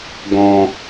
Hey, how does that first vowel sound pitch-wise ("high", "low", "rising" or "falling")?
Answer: low